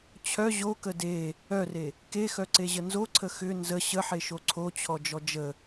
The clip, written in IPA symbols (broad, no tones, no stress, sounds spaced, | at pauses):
t͡ɕʰ œ ʑ o k ə d e | œ r e | k e x œ ǀ e ʑ ə n z o ǀʰ ə x ʏ n z ə ɕ ə ħ e ʃ o ǀʰ o t͡ɕʰ ɔ d͡ʒ ɔ d͡ʒ ə